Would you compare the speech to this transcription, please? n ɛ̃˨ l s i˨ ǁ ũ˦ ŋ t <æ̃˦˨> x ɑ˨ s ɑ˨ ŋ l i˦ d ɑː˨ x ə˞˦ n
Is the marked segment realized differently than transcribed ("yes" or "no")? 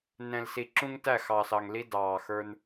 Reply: yes